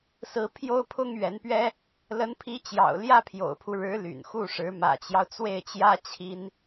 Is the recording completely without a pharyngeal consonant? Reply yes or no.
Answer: yes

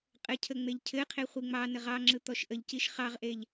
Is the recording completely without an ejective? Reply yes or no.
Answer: no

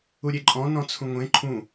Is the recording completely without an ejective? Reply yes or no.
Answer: no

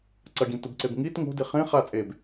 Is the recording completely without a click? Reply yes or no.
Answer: no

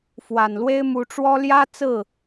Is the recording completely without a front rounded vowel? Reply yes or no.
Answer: yes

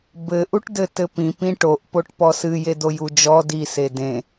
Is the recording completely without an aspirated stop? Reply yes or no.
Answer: yes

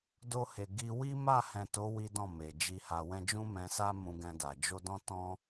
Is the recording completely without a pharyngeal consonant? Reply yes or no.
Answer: yes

